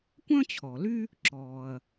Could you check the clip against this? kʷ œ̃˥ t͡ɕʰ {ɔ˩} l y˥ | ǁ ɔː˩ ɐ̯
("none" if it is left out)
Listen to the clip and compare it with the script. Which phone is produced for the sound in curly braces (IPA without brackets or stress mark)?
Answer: ɔ˩